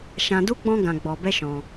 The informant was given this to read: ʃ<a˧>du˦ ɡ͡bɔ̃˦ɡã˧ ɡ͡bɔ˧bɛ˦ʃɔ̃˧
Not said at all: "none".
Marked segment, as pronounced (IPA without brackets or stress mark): ã˧